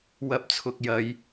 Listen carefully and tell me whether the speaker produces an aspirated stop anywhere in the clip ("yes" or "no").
yes